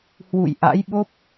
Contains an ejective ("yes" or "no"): no